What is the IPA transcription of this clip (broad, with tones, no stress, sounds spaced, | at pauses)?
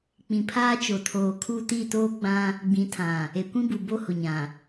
k͡p ĩ˨ pʰ aː˦ t͡ʃ o˨ tʰ oː˨ kʰ u˦˨ t i˦˨ t oː˦ ɡ͡b ã˦ | ɡ͡b ĩ˨˦ tʰ ã˨ | e˨ kʷ ĩ˦ b u˨ b o˦ h ʊ˨ ɲ ã˨